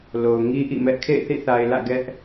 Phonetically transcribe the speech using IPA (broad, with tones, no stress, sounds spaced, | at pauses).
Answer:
l o˨ ʊ̯ ŋ i˦ ʔ ḭ˦˨ m ɛ˦ ʔ kʰ ḛ˦˨ ɪ̯ θ ḭ˦˨ θ a˨ ɪ̯ l ä̰˦˨ ɡ ɛ˦ ʔ